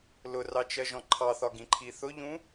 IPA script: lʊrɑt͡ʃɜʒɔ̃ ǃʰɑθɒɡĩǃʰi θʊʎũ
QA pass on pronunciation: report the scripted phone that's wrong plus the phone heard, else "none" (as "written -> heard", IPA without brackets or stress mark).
none